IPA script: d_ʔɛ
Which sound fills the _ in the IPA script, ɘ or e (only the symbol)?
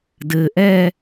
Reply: ɘ